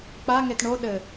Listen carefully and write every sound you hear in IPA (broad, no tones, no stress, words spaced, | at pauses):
k͡pa ŋetɳo ɗɘ